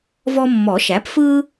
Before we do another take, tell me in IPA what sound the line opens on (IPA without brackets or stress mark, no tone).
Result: v